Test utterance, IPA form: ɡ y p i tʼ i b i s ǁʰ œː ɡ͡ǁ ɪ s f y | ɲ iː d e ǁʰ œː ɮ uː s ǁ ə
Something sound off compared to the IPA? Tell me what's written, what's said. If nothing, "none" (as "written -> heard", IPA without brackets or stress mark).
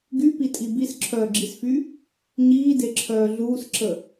ɪ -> i